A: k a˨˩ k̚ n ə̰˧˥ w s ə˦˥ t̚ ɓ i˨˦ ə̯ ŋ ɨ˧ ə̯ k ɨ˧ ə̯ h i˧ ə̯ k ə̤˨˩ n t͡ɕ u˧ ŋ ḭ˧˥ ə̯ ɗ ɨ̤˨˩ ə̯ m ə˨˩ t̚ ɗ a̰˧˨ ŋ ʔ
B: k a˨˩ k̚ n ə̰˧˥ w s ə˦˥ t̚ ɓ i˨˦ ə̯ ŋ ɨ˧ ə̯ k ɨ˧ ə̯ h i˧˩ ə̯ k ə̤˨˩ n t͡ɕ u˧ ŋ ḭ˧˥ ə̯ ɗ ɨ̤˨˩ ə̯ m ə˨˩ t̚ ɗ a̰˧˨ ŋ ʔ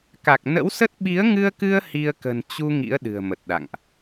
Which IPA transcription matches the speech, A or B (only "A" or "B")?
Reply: A